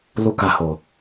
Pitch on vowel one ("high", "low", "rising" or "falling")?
high